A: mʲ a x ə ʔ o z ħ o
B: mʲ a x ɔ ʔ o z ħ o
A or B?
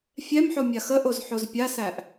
A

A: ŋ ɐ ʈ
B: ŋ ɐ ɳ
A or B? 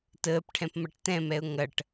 A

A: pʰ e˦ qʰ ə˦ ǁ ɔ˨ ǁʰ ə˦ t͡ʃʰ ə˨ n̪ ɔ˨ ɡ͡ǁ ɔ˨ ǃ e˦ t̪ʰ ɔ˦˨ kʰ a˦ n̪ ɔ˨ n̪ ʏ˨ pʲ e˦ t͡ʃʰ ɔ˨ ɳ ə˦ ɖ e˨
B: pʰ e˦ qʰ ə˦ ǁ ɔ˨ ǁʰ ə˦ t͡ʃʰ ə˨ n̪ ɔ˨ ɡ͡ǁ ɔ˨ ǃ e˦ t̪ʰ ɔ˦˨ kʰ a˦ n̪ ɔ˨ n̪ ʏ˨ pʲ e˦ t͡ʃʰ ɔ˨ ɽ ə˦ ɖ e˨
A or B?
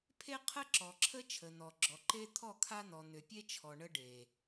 A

